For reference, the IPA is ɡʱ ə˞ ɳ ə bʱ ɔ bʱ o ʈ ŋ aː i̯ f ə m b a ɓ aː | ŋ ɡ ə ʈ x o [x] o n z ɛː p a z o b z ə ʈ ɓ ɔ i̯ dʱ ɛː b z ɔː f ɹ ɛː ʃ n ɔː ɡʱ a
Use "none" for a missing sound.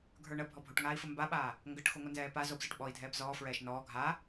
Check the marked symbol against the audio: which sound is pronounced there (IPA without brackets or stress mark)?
ŋ